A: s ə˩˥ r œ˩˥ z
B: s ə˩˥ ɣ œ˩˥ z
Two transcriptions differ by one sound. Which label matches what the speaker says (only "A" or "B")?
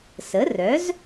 A